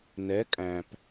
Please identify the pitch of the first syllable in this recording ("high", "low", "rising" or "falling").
rising